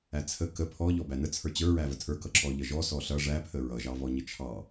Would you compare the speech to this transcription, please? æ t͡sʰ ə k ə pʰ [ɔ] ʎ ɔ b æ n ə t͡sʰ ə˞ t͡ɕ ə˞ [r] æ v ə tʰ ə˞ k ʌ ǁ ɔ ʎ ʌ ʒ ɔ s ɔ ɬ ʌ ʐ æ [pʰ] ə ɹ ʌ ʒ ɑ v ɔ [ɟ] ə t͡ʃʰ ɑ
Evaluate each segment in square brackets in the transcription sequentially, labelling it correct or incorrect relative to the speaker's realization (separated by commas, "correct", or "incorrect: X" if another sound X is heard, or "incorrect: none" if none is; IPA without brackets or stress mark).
correct, incorrect: ɹ, correct, incorrect: ɲ